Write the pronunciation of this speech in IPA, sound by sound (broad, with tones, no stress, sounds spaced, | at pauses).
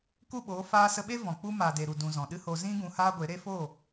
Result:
k u˦˨ ɓ oː˨˦ f aː˧ s ə˧ ɓ e˦ v ɔ̃˨ k͡p u˦ m aː˨ d e˨ ɾ u˨ d ũ˨ z ɔ̃˨ ɗ ɨ˦ h o˧ z ĩ˦ ɡ ũ˧ h aː˦ ɡʷ e˨˦ ɾ e˦ f o˦˨